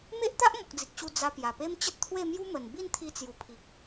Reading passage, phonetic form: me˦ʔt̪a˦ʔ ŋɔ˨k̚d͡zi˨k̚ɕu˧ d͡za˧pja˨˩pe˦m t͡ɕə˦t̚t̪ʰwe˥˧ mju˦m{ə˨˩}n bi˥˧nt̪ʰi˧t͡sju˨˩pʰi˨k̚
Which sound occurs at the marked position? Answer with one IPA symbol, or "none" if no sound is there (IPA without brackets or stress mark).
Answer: ə˨˩